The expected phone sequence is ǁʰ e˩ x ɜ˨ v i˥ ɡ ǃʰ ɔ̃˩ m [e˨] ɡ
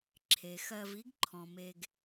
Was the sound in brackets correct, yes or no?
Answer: yes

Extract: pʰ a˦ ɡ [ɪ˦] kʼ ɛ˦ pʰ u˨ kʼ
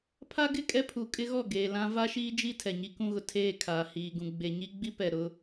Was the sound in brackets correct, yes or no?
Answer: no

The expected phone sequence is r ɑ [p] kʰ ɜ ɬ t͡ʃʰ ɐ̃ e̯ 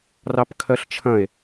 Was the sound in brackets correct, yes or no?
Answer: yes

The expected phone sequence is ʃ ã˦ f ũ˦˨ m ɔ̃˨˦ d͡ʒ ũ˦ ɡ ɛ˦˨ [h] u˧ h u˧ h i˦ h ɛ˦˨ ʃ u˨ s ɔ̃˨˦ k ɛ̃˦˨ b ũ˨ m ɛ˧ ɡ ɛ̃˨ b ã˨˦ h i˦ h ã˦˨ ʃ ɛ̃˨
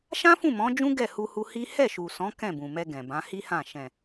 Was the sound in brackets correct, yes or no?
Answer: yes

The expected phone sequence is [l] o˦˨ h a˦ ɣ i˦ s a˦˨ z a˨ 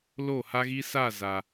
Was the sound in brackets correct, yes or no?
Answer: yes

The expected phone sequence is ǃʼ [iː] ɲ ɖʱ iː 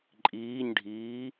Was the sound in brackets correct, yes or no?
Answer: yes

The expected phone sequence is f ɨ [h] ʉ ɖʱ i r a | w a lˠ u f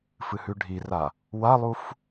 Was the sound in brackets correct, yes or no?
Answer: yes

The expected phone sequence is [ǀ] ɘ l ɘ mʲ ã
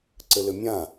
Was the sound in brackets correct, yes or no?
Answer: yes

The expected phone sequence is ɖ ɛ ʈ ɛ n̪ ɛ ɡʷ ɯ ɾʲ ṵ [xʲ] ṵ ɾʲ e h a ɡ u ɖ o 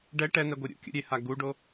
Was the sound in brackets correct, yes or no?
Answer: no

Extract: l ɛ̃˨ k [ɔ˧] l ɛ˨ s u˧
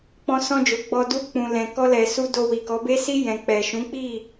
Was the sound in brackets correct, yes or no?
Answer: yes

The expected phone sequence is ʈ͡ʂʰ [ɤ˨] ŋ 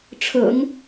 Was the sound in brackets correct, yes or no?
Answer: no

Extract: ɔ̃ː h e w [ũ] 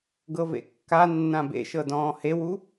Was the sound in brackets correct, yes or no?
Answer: no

